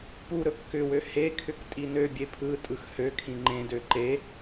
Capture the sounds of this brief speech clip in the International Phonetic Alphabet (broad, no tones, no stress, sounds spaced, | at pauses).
p u ɾ ɵ kː ʏ w ø h e kʰ ʏ k tʼ i n ø bʲ e pʰ ɯ tʼ ɯ x h ø kʰ ĩ ŋ͡ǃ ẽ d ø ǃ e